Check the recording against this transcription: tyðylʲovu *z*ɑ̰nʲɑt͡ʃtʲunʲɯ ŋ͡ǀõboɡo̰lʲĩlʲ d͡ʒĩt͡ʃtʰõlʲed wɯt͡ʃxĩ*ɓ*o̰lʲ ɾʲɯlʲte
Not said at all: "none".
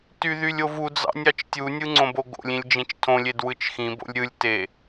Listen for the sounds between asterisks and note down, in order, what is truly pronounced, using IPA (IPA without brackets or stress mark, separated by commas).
d͡z, b